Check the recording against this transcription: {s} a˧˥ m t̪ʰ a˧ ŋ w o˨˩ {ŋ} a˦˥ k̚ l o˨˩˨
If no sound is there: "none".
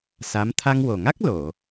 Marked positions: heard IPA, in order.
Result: s, ŋ

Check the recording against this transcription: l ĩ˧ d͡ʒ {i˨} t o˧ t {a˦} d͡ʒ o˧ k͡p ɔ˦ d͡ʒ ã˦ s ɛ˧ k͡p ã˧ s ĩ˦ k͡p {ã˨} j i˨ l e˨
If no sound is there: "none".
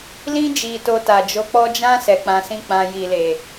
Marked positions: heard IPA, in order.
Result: i˨, a˨, ã˧

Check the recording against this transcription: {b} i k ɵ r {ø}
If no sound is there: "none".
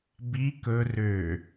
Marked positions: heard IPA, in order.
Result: b, ø

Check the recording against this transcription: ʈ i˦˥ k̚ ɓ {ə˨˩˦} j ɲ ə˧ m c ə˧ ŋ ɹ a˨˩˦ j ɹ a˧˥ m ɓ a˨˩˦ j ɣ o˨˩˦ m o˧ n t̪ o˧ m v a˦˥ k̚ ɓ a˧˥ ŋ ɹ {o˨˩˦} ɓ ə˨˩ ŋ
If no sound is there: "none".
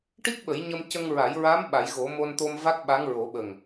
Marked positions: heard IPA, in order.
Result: ə˨˩˦, o˨˩˦

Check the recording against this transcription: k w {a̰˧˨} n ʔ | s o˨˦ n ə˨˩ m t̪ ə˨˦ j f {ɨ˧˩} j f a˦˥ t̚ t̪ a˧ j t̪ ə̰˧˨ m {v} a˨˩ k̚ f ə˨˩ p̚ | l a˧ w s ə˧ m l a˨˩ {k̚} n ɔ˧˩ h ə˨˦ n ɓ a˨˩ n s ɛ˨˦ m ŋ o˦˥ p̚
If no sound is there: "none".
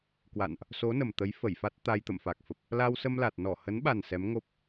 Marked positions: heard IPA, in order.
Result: a̰˧˨, ə˧˩, f, t̚

